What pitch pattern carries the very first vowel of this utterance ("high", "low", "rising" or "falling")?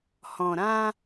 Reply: low